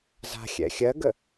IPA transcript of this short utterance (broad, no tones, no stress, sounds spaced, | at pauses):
z a̤ xʲ ɛ̰ xʲ ɜ ɡ ə